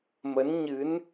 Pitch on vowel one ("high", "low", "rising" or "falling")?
rising